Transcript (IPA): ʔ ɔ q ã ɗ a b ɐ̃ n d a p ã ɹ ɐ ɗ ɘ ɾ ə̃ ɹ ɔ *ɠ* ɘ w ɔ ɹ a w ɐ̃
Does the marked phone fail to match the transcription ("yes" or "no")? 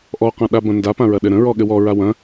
no